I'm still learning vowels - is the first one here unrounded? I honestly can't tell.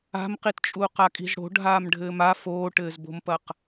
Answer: yes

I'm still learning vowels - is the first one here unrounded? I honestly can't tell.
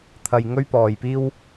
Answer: yes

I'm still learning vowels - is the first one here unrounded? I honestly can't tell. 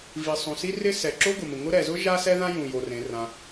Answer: yes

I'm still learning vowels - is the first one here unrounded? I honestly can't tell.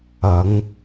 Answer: yes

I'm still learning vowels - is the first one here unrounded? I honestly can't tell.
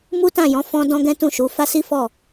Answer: no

